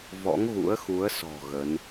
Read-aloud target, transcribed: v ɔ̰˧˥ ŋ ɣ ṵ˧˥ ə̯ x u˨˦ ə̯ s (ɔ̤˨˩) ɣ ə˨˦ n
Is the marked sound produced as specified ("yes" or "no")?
yes